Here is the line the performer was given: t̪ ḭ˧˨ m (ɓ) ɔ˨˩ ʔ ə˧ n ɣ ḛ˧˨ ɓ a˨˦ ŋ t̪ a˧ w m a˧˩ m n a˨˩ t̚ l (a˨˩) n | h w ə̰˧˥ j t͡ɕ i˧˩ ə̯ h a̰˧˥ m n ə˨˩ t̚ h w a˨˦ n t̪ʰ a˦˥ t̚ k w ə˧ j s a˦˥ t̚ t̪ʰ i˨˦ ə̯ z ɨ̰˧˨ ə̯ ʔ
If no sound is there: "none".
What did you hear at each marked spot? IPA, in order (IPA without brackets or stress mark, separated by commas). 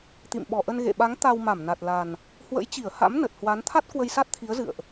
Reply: ɓ, a˨˩